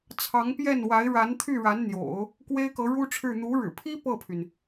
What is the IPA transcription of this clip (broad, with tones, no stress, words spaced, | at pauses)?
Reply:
t͡sʰɑ˧˥ŋpjɛ˥˩nwa˧˥ɪ̯ ɻa˧˥nt̪ʰy˥˩ ɻa˧˥nn̪jo̰˨˩˦ʊ̯ | kwe˥ɪ̯kɤ˧˥ɻu˥ʈ͡ʂʰɻ̩˥˩ n̪u˧˥ɻɻ̩˨˩pʰi˥ pɤ˥˩pʰy˩n